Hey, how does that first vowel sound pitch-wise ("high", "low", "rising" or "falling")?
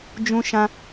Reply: high